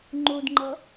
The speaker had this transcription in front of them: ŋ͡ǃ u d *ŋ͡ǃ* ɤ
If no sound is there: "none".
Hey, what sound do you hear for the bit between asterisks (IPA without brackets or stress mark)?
ŋ͡ǃ